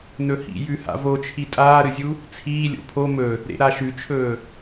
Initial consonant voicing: voiced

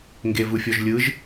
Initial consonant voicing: voiced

